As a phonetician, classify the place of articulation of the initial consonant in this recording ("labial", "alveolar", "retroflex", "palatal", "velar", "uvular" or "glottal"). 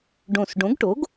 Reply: retroflex